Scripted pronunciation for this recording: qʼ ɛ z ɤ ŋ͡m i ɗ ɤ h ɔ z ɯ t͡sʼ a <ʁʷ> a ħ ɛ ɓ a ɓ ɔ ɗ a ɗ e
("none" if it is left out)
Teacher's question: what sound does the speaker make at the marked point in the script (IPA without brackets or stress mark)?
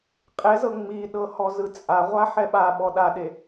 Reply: ʁʷ